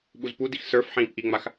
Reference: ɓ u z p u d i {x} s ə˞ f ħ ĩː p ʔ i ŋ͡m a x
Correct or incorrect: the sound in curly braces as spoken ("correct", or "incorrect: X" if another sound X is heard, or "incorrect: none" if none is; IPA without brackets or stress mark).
correct